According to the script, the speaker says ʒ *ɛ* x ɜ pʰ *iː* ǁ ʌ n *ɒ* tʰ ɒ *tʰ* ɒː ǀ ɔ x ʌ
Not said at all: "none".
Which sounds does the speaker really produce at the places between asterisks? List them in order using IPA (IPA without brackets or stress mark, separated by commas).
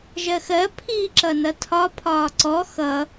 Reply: ɜ, iː, ʌ, pʰ